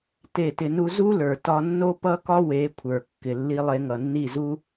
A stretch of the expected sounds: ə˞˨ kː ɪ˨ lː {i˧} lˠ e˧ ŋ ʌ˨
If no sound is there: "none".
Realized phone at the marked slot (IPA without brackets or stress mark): i˧